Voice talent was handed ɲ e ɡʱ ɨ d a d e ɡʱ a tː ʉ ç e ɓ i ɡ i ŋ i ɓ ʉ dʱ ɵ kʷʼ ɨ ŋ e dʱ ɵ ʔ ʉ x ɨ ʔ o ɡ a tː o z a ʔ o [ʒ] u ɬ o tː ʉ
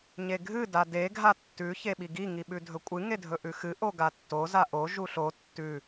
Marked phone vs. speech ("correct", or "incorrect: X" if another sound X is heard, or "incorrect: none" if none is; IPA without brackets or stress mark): correct